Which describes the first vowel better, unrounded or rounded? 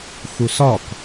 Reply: rounded